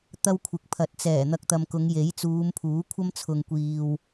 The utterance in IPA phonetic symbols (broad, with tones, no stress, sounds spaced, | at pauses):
t̪ ɐ˥ w kʷʰ ɪ˨ k̚ pʰ ɐ˨˥ t̚ t͡s ɛː˨˩ n̪ ɐ˧ k̚ t̪ ɐ˨ m k ʊ˨˧ ŋ j e˨˥ j t͡s uː˨˧ m pʰ uː˨˥ kʷʰ ɐ˥ m t͡sʰ ʊ˨ ŋ kʷ iː˨ w